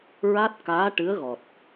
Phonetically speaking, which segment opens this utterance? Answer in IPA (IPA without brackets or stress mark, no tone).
ɹ